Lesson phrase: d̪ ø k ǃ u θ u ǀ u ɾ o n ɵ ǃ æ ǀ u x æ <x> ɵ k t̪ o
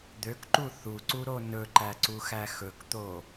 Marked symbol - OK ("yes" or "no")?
yes